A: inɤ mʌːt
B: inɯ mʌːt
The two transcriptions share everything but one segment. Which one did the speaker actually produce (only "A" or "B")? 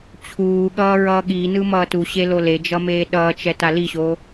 B